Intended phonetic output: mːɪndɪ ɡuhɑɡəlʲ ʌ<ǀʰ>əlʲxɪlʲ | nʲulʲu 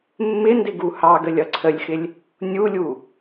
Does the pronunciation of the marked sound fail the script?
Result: no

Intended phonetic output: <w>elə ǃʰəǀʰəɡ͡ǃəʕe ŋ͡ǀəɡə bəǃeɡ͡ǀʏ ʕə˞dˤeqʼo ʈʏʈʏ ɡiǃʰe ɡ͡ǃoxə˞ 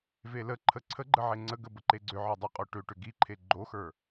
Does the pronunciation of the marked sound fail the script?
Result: yes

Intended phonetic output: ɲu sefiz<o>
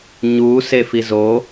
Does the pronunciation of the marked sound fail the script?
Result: no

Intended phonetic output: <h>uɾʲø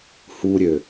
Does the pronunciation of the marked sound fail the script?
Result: no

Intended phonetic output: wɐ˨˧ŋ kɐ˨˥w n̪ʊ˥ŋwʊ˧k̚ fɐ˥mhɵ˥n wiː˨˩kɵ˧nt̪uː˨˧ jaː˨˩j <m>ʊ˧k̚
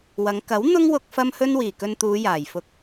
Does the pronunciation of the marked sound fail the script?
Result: yes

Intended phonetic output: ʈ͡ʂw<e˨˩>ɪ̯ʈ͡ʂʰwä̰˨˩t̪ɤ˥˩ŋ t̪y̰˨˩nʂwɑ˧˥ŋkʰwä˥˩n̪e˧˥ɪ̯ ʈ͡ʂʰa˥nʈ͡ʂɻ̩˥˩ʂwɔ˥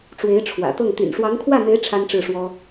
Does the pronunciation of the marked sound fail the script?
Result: yes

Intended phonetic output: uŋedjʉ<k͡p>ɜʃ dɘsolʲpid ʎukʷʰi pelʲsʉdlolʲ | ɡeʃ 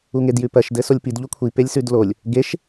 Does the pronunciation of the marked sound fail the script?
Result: yes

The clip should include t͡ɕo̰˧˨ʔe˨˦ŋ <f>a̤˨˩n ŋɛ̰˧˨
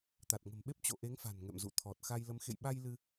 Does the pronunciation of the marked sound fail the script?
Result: no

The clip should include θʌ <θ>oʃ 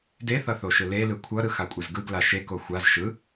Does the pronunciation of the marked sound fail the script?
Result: no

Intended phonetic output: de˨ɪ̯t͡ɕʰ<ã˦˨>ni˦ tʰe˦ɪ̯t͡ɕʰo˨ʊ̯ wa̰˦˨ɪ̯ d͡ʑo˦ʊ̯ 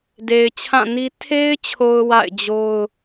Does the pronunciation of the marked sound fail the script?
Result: no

